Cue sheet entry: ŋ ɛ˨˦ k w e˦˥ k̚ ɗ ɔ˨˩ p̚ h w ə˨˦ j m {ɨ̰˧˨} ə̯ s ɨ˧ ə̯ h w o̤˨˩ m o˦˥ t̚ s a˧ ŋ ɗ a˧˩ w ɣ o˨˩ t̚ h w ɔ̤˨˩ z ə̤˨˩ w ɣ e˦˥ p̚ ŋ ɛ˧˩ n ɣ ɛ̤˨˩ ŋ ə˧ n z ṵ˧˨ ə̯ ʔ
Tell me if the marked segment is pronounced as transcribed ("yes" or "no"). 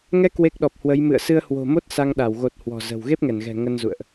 yes